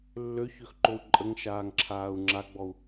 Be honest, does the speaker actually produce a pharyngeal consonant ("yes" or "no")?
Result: no